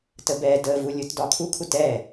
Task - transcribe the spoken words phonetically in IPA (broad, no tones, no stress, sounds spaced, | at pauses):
t ə b ɛ d ə v u lʲ u t d ɒ kʰ u kʰ u t ɛ